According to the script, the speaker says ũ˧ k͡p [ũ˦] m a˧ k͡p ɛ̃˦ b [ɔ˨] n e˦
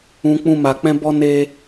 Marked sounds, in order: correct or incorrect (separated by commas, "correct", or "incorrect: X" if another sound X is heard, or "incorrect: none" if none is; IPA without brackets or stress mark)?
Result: correct, incorrect: ɔ˦